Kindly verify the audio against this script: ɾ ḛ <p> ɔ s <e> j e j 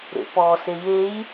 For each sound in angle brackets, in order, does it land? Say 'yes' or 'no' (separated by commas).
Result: yes, yes